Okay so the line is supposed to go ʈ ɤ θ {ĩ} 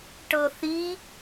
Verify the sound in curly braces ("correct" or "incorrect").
incorrect